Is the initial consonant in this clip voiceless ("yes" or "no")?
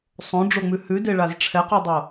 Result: yes